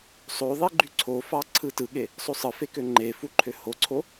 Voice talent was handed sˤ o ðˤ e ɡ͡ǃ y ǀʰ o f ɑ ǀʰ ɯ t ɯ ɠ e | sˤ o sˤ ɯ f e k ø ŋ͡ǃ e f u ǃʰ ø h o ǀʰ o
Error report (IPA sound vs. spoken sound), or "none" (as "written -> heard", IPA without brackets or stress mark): none